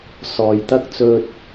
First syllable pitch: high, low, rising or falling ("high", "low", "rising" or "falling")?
low